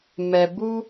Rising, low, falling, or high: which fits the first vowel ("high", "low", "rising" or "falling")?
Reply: low